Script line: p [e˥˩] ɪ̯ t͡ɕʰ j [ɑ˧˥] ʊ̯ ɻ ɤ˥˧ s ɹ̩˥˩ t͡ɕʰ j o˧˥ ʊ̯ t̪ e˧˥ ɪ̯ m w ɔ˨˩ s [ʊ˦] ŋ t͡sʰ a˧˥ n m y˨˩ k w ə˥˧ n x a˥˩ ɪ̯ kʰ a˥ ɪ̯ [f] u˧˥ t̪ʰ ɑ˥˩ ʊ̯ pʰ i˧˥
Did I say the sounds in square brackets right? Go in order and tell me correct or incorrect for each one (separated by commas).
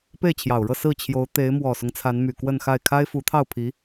correct, incorrect, correct, correct